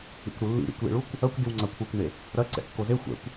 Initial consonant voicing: voiceless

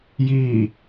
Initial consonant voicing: voiced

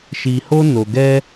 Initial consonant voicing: voiceless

